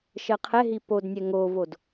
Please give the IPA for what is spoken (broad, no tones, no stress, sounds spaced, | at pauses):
ʃ ɜ qʰ ɛ ɦ i p o d nʲ ɛ ŋ o v o d